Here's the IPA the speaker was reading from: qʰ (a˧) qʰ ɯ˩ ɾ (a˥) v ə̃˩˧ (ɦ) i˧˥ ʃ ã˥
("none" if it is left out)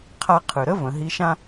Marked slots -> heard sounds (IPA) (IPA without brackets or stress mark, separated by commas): a˧, ə˥, ɦ